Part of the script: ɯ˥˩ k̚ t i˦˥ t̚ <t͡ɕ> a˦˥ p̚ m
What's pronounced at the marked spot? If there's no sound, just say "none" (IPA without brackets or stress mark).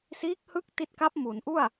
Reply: k